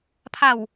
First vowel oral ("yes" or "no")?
yes